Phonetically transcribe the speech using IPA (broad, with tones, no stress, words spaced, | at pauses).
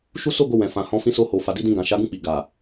ʃu˦so˦ɡo˧ wɛ̃˨fã˨hɔ̃˧fĩ˧ so˧ho˨fa˨ di˨˦dĩ˧ɡã˨ ʃa˨˦ɡũ˦˨k͡pi˨ ɡa˨